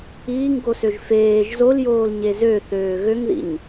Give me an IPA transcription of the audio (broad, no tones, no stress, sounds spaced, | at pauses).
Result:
iː ŋ ɡ o s ø ʒ f eː ʒ z o l j oː l ɲ e z ø θ øː ɣ ø ŋ ð ḭ ɲ